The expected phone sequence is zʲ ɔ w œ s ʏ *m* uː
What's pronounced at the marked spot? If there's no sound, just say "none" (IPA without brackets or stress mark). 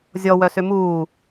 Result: m